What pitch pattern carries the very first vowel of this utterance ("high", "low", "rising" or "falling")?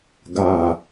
falling